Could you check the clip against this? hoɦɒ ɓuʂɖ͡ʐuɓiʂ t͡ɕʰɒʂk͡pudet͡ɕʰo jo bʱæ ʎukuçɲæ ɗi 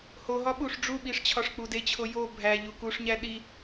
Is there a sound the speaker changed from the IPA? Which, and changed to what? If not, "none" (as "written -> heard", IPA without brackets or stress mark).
ç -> ʂ